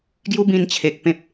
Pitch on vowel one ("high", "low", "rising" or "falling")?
high